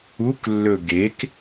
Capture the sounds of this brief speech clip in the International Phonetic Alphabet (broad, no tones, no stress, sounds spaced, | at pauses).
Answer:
u k lː ɵ ɡ e k